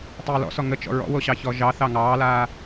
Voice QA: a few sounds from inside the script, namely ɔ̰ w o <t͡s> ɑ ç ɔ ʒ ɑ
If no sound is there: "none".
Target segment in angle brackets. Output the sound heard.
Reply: ɕ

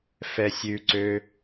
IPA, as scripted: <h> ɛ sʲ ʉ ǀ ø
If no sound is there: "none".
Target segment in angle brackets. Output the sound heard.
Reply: f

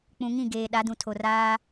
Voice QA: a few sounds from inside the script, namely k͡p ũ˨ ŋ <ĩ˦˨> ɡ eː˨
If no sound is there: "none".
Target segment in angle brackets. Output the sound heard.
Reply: ĩ˦˨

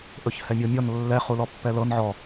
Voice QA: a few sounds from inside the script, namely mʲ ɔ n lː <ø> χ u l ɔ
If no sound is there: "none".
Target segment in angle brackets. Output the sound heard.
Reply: ɛ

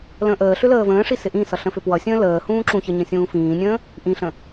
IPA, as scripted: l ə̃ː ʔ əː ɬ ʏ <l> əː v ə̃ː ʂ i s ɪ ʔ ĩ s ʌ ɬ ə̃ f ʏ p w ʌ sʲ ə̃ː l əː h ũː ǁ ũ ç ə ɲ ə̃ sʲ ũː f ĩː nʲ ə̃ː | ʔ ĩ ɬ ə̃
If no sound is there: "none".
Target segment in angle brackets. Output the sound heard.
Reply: l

